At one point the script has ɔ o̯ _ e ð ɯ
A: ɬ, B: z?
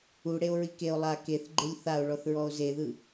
B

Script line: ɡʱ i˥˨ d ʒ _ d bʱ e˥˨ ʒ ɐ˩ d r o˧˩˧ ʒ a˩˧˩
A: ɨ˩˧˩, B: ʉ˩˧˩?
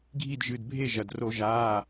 A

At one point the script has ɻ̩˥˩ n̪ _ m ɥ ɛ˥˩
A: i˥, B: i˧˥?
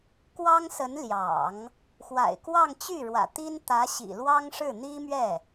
A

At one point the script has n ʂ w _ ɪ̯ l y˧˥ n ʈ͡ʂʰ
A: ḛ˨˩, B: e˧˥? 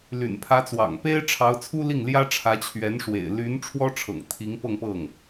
A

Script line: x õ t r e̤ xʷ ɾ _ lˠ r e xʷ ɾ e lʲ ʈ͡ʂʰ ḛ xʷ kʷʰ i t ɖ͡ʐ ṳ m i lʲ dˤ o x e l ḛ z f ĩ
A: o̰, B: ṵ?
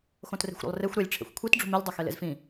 A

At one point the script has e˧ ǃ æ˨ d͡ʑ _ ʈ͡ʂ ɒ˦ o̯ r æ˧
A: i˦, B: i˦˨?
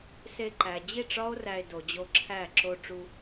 B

